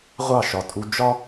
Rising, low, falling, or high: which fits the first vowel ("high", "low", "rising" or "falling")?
falling